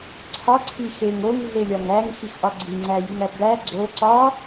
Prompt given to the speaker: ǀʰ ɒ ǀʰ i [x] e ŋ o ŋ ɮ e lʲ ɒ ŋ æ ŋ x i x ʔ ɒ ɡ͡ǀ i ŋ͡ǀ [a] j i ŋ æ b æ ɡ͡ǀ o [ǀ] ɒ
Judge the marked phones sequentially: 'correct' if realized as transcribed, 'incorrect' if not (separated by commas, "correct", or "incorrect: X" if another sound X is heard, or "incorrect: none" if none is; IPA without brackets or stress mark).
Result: correct, incorrect: æ, correct